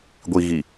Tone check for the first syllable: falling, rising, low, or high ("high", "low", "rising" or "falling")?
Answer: low